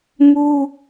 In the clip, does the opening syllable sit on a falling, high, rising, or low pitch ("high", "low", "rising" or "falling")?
high